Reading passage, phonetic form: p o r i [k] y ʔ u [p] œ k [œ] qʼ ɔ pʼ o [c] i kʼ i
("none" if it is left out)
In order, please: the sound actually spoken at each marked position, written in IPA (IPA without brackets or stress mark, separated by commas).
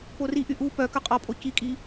ʔ, p, œ, c